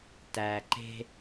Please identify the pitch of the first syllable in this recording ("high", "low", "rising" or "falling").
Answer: low